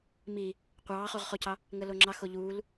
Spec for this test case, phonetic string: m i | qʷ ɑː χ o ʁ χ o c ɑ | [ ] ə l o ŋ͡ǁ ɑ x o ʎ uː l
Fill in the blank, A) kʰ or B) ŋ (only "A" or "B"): B